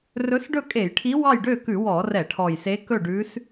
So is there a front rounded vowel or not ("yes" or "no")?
yes